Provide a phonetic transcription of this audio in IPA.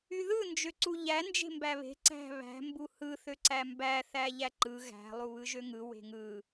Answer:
y ð ɯ n d͡ʒ ø ǀ u ʎ æ n d͡ʒ e̤ m b æ β e̤ ǀ æ̤ β æ̤ m b u h ɯ θ ø ǀ æ m b æ θ æ ʎ æ ǃ ɯ ɣ æ̤ lˠ u β ɯ ʒ ø ŋ ɯ w e̤ ŋ ɯ

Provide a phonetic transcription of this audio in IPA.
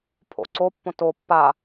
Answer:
pʰ o̰ ǀ o pː õ t o pː a

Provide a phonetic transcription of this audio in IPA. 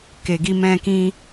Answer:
k e˨ ɡ i˧ m ɛ̃˧ k ĩ˦

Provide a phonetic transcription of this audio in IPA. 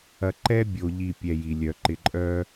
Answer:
ɐ˨ ǃ ɛ˦ bʲ o˨ ʎ i˦˨ pʲ ɛ˨ j i˨ lʲ œ˨ ǃ ɪ˨ ǃʼ œ˦

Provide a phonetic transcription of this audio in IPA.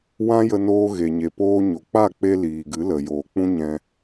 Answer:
w ã˦ j ə˧ n oː˧ ɣ e˨ ɲ e˨ p oː˧ ɲ o˨ k͡p a˦˨ k͡p e˧ l iː˨ ɡ ɨ˨˦ l ə˨ j oː˨ k͡p ũ˦ ɲ ɛ̃˧

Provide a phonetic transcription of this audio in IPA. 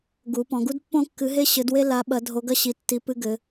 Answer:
ɡ u˧˥ p ɔ̃˧˥ ɡ u˥ d pː õ˥ kː ɨ˧˥ ɦ e˥ ɕ ɘ˧˥ d w e˥ l a˧˥ ɓ ɐ˧˥ dʱ o˧˥ ɡ ɐ˥ ɕ i˧˥ tː i˧˥ p ɨ˥ ɡ ɘ˧˥

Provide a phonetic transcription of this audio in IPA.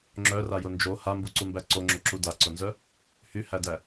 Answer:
ŋ͡ǁ œ r a j ʊ n d͡ʒ o h a m b u ǀ u m b æ ǀ o ŋ͡ǁ o ǁ u d a ǀ ʊ n z œ | h y h æ d æ

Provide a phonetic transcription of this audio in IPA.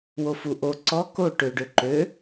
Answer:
w o f u ʔ o ǀ ɔ k o ʈ ø ɖ ø ǃ ø

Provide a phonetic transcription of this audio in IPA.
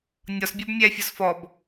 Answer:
nʲ ɒ s bʲ ɔ b mʲ æ fʲ ɒ s f ɔ b

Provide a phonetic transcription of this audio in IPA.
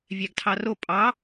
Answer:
vʲ æ ɡ tʰ ɑ r o pʼ ɑ

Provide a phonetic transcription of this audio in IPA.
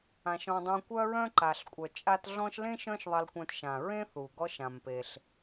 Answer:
ã˩ ʃ ɔ̃˨ dˤ ũ˨ kʷ œ˥ ɹ œ̃˥ ǃ a˩ ɬ kʷʼ œ˩ t͡ʃʼ a˦ t ɮ ɔ̃˦ ʃ l ẽ˥ ʃ œ̃˦ ʃ ðˤ ɜ˨ l kʷ œ̃˨ t ʃ ã˩ ɹ ẽ˥ θ u˩ ɡ ɔ˦ ʃ ã˩ m p e˩ ɬ

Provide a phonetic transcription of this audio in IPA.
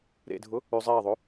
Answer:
ɾ ḛ dʱ ʊ | ʉ zˤ eː ðˤ o

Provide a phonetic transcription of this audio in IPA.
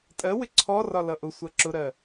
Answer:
tʼ ɜ w ɪ ǀʰ ɔ r ɒ l ʌ ʔ ʊ sʷ ɜ ǁ ʊ ɾ ɜ

